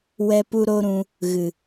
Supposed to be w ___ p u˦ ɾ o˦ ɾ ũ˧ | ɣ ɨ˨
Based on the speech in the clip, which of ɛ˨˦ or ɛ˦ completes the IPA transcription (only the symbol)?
ɛ˦